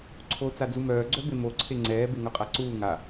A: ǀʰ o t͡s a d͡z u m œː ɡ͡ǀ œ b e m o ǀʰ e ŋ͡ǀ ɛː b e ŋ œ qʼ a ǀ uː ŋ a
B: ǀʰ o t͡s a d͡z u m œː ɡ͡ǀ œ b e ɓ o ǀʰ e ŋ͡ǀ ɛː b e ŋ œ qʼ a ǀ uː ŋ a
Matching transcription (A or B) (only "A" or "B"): A